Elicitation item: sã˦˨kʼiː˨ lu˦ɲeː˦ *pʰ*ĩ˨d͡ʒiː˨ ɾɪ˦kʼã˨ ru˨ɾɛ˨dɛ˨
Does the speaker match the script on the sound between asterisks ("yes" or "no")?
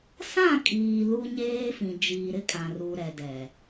no